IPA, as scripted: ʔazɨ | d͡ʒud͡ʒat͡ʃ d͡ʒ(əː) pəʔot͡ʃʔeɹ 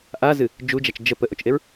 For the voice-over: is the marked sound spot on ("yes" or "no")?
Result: no